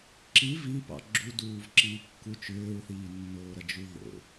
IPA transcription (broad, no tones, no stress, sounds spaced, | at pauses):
ǁ i v i p ɑ̰ ɡ͡ǁ u d uː v ǁ iː kː u t͡ʃ ʏː ɹ θ iː nː oː ɾ ɐ d͡ʒ u ð o̰